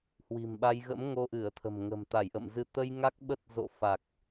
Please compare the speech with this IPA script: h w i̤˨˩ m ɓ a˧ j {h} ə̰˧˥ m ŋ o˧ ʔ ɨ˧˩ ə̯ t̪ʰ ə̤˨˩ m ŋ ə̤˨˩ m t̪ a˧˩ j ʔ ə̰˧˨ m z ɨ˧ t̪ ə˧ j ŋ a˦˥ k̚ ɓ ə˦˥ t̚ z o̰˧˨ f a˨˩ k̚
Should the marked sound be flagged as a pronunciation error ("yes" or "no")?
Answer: yes